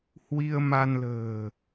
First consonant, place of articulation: glottal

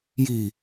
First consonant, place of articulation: palatal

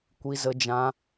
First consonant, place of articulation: velar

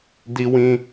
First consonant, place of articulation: alveolar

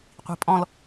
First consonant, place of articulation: uvular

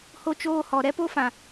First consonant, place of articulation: glottal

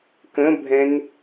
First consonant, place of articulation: velar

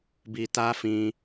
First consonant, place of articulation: labial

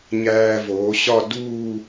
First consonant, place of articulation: palatal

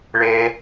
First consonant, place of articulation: retroflex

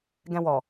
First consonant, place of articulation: velar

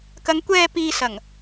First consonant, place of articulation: velar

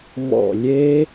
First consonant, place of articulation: labial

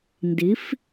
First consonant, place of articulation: alveolar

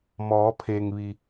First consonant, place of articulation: labial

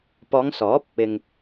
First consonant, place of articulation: labial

